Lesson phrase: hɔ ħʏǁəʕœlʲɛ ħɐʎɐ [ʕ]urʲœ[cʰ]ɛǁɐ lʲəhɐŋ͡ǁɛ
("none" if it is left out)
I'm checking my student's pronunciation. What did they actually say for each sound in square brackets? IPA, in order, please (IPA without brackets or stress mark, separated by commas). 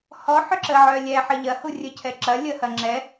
h, cʰ